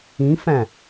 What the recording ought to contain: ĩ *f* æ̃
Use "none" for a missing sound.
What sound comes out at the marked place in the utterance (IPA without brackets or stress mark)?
f